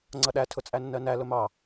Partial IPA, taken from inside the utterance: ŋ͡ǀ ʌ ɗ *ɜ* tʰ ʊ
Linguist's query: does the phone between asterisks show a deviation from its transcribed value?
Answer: yes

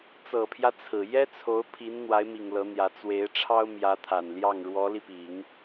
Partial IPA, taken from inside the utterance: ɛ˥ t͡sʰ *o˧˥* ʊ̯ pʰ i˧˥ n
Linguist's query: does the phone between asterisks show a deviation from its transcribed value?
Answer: no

